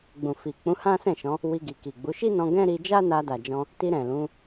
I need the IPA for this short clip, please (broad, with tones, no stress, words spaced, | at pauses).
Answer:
ɡ͡bũ˨fi˨ k͡pũ˨˦hã˦sɛ̃˦˨ ʃɔ̃˨˦ | wi˧ɡi˨ki˨ɡ͡bu˨˦ ʃi˦nɔ̃˧ ɡɛ̃˦ɾi˧ d͡ʒa˦na˧da˨d͡ʒɔ̃˧ | ti˧ɾɛ̃˨ lũ˨˦